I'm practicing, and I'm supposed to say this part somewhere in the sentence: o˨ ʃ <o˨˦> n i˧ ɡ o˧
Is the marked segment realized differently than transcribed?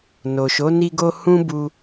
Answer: no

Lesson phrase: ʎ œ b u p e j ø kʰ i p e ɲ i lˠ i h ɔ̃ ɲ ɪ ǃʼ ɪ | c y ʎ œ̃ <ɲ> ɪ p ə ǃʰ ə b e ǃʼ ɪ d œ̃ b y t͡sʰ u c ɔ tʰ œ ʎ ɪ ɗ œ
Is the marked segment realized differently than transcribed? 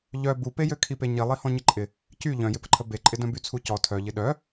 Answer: yes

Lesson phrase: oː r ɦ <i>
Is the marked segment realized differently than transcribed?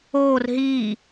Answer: yes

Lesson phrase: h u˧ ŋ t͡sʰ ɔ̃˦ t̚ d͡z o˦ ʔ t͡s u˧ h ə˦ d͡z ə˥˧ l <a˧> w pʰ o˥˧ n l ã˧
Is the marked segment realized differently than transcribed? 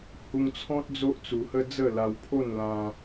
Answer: no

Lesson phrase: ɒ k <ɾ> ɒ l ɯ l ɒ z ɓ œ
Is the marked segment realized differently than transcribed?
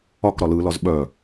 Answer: no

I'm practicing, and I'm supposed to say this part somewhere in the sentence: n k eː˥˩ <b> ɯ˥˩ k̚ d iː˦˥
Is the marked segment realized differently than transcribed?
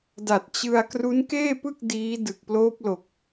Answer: yes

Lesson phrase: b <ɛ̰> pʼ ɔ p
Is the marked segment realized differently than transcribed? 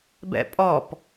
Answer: no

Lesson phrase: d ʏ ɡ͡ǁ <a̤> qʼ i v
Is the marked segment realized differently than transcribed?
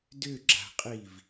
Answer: no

